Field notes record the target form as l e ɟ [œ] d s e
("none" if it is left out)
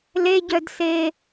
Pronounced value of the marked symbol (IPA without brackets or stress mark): œ